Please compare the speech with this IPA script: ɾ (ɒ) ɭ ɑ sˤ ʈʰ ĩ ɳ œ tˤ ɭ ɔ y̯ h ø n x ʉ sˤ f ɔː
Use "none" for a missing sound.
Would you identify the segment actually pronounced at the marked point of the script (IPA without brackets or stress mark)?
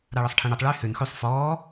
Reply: ɑ